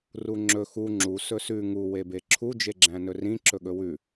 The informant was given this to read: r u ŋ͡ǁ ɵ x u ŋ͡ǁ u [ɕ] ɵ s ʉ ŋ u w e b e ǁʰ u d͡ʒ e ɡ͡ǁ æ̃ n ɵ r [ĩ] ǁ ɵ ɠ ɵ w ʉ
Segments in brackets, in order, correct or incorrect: incorrect: s, correct

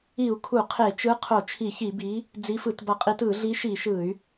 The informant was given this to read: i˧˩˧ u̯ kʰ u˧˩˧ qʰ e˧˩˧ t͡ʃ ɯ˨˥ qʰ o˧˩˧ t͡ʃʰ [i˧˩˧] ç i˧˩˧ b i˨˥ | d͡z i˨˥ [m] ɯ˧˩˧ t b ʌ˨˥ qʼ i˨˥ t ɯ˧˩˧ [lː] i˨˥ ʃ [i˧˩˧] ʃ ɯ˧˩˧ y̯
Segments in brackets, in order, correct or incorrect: correct, incorrect: f, incorrect: ɮ, correct

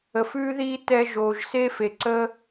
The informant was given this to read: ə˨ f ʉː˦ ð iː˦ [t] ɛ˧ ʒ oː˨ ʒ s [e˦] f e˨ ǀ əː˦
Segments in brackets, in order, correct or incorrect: correct, correct

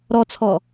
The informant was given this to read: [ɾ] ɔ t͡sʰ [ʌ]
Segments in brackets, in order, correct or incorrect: correct, incorrect: ɔ

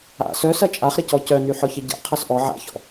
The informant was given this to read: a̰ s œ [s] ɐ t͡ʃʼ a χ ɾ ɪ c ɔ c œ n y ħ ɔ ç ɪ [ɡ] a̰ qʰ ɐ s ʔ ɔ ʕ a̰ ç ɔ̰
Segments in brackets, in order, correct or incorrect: correct, incorrect: ɟ

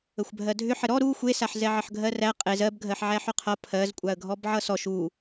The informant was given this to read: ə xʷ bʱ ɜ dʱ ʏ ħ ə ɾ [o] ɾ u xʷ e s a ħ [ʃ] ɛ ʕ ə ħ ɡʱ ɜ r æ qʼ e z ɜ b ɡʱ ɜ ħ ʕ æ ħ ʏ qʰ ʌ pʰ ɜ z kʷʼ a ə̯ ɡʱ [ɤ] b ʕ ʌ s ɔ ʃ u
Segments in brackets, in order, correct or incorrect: incorrect: ɔ, incorrect: z, incorrect: ɔ

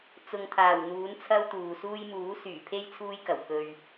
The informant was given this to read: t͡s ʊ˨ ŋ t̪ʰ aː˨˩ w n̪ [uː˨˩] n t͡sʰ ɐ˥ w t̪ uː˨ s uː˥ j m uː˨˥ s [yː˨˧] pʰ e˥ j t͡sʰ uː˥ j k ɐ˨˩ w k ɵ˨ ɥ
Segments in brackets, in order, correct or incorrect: incorrect: uː˨˥, incorrect: yː˨˩

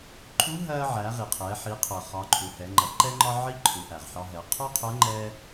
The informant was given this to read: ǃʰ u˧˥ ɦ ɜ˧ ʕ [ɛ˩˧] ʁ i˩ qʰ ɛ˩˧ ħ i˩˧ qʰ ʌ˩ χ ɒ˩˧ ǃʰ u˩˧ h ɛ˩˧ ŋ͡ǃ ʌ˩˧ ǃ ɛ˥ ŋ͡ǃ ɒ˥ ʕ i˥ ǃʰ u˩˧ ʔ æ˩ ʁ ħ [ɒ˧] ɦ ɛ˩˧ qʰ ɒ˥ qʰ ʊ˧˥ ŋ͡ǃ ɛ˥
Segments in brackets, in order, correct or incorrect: incorrect: æ˩˧, correct

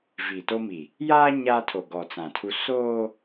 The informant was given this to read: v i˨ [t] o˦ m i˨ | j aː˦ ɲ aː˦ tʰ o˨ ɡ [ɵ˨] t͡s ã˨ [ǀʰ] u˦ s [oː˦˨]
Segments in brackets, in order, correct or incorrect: correct, incorrect: ɔ˨, incorrect: tʰ, incorrect: oː˦

